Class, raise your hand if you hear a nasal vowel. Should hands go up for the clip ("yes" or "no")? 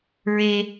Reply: no